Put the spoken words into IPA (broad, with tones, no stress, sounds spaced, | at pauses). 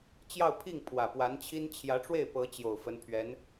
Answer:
t͡ɕ j ɑ˥˧ ʊ̯ pʰ i˥˩ ŋ pʰ w ä˨˩ p w a˧˥ n t͡ɕʰ i˥ n t͡ɕʰ j ä˧˥ ʈ͡ʂ w e˥˩ ɪ̯ p ɤ˧˥ t͡ɕ j o˨˩ ʊ̯ f ə˧˥ n pʰ ɥ ɛ˧˥ n